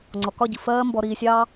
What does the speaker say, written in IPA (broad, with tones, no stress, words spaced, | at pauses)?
ŋ͡ǀɔ˨kɒ˦˨ɟi˨ fɜː˦mbɔ˧ ɾiː˧sʲɑː˦